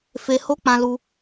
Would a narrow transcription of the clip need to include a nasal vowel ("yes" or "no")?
yes